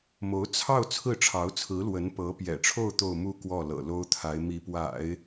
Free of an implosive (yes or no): yes